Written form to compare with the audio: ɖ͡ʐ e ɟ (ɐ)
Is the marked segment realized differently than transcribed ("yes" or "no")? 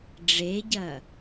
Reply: no